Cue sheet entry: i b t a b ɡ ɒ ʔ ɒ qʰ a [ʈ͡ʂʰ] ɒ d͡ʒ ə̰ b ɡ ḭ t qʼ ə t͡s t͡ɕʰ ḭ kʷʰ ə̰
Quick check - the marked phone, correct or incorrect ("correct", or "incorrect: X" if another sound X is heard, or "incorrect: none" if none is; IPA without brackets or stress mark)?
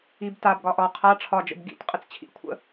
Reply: correct